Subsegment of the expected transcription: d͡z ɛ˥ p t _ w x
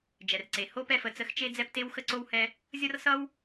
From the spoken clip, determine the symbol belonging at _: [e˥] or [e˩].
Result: e˥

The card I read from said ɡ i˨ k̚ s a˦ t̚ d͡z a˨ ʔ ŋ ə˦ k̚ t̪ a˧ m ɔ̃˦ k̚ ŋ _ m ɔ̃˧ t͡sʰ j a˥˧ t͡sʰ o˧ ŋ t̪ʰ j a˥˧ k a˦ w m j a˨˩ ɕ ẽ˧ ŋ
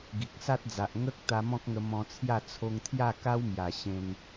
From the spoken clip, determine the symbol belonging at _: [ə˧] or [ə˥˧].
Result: ə˧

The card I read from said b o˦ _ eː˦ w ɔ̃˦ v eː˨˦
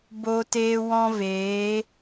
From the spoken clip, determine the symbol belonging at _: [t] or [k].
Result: t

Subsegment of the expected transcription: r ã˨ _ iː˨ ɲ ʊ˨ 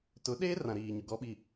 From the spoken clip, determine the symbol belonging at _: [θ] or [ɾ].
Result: ɾ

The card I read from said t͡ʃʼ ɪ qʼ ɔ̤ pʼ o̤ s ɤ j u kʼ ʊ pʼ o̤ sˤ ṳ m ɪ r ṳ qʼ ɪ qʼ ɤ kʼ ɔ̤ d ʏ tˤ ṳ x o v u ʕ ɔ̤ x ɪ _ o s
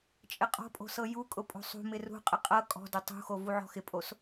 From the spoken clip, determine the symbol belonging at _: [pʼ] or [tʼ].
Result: pʼ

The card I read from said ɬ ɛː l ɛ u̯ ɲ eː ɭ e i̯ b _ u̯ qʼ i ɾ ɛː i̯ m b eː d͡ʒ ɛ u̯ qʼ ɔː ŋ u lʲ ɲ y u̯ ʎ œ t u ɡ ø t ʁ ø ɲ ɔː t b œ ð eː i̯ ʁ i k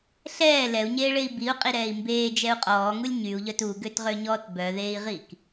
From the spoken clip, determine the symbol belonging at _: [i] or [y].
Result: i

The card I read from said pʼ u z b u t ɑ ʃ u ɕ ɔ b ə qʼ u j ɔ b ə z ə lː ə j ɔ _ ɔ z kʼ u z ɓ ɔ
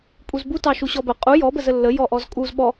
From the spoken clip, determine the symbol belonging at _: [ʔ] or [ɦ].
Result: ʔ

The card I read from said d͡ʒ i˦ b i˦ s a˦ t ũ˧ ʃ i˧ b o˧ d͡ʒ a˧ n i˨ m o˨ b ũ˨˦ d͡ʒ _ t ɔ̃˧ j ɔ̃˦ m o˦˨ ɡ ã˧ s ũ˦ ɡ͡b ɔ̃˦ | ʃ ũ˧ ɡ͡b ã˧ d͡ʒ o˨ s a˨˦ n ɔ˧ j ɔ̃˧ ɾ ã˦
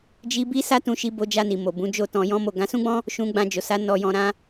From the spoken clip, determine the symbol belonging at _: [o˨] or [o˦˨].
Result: o˦˨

